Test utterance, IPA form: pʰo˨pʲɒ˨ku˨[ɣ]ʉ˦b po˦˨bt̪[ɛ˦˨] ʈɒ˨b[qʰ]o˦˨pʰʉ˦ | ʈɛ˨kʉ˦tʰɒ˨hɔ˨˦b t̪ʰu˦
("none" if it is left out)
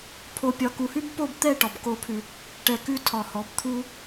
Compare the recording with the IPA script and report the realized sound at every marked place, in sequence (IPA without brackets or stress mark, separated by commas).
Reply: h, ɛ˦˨, k